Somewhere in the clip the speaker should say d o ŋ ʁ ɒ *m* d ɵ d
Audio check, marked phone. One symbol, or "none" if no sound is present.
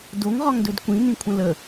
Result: ŋ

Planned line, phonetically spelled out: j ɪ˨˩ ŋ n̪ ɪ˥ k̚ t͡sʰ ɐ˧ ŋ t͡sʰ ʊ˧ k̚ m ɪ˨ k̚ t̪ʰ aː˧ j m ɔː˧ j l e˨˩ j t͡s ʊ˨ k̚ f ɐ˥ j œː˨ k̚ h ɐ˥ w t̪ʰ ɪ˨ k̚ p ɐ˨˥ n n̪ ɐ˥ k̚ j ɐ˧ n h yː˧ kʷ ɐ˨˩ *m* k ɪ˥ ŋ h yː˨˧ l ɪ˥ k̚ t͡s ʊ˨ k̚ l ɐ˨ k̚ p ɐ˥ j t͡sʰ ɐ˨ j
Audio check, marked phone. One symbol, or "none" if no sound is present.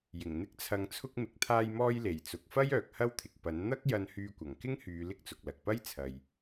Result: ŋ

